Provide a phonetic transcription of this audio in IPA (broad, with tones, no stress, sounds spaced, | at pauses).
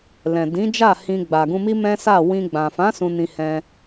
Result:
l ɛ̃˨ d ĩ˨˦ d͡ʒ a˦˨ h ĩ˧ ɡ͡b a˨ ɡ ũ˧ m i˦ m ɛ̃˦ s a˦˨ w ĩ˧ ɡ͡b ã˨ f ã˨˦ s ũ˧ n ĩ˧ h ɛ̃˧